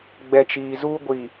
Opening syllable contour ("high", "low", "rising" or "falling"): low